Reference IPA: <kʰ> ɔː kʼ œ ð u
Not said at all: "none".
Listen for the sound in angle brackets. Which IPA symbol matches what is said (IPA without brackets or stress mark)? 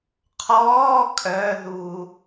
qʰ